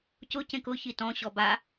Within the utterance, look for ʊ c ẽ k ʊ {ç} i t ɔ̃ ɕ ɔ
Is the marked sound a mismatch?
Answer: no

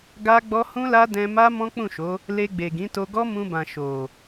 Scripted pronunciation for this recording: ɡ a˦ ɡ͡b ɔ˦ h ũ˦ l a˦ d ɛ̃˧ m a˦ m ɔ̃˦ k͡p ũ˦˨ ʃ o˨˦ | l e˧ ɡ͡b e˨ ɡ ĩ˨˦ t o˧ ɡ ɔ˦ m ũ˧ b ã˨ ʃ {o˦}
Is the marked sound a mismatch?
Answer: yes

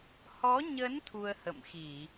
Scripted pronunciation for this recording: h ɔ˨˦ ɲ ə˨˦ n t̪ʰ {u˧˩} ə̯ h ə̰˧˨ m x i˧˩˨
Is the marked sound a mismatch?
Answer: yes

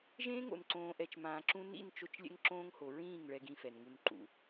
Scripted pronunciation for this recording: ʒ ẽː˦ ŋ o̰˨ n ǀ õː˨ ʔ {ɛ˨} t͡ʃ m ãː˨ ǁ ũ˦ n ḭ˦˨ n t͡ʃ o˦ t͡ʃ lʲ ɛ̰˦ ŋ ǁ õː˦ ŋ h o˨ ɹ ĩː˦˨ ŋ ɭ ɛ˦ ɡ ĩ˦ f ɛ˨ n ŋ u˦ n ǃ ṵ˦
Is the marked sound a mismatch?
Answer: no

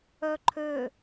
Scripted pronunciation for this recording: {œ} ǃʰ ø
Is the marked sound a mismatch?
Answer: no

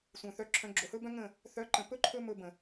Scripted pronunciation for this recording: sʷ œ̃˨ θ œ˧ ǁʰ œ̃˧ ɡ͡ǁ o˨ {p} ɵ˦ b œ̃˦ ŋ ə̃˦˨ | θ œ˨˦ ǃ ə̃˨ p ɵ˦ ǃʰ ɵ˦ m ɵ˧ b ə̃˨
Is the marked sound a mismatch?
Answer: yes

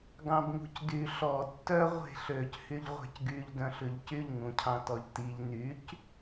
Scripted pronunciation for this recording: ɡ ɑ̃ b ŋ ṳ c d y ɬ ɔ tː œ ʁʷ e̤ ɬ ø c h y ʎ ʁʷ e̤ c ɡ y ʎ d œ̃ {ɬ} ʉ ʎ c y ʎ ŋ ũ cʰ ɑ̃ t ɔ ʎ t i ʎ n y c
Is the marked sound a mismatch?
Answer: no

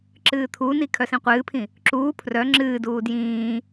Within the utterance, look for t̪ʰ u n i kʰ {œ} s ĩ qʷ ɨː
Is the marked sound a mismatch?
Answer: no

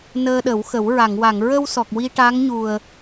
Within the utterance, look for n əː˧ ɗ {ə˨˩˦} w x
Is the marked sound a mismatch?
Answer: no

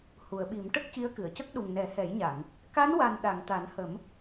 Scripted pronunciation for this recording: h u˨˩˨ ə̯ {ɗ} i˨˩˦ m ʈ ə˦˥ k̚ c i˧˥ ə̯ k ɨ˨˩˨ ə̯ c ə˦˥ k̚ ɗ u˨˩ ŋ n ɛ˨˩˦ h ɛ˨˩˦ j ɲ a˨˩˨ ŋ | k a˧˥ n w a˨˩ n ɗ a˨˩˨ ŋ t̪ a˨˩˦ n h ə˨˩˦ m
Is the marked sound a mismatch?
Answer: yes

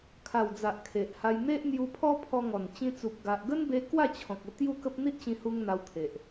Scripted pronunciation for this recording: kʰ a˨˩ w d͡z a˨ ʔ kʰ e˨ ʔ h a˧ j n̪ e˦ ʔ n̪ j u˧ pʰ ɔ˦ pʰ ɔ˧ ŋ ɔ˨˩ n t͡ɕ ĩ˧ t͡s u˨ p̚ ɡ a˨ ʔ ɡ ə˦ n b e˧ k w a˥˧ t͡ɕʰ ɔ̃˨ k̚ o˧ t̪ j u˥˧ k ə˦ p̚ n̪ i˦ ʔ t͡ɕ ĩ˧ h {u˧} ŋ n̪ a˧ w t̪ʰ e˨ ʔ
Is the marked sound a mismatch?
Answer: no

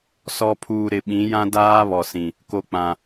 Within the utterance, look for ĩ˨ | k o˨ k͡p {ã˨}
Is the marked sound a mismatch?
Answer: no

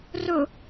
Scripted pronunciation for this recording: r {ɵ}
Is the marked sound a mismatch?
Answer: no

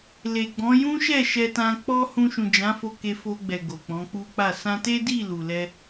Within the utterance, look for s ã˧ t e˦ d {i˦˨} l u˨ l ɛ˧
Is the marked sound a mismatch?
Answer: no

